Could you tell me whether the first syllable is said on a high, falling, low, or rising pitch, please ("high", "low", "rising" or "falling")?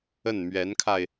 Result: falling